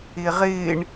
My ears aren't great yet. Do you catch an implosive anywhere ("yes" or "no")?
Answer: no